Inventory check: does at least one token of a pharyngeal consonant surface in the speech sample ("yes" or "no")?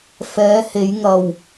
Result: no